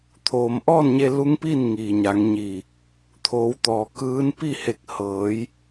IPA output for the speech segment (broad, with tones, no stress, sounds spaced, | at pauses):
t̪ʰ oː˩ m ʔ ɔː˥˨ n ɲ e˧ l u˧˥ ŋ p i˥˨ n ŋ iː˩ ɲ a˩˧ ŋ ɲ iː˧˩ | t̪ʰ oː˩˧ w t̪ ɔː˩ k ɯː˧˥ n p i˥˨ h e˧˩ k̚ h ɤː˩˧ j